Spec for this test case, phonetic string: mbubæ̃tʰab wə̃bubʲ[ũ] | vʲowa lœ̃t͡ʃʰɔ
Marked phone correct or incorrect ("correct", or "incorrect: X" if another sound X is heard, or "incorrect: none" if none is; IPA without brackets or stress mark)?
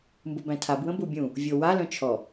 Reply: correct